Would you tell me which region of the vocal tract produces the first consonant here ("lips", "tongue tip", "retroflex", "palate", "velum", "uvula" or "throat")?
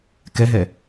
velum